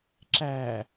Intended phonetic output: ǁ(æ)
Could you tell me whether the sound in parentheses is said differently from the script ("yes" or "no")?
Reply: no